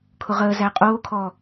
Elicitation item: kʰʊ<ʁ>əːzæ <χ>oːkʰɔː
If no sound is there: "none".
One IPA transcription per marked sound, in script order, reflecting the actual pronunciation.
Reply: ʁ, qʼ

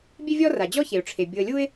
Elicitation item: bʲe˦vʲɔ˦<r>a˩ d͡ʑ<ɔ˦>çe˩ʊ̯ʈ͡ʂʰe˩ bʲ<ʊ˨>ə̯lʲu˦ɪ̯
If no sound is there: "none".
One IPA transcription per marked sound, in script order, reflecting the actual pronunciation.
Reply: r, ɔ˥, ʊ˨

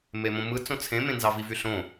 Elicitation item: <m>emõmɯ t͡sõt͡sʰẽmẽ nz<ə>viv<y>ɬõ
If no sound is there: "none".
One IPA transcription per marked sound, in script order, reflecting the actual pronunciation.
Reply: m, ɑ, y

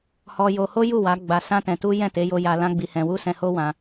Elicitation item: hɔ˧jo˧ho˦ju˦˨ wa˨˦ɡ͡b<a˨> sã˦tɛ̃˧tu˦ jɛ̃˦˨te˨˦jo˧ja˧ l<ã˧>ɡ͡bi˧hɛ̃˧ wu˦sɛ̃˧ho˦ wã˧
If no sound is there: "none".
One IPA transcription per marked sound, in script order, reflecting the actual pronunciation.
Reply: a˧, ã˦

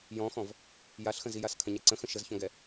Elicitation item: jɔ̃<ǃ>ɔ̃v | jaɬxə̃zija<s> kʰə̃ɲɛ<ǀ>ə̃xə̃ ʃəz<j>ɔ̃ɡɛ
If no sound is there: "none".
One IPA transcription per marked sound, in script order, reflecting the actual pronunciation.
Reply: x, s, ǀ, ç

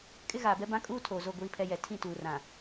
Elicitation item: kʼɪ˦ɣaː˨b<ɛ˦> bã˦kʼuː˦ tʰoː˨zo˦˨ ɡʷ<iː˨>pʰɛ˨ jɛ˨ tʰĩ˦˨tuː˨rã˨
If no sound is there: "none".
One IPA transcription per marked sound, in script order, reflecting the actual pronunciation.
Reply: ɛ˦, iː˨

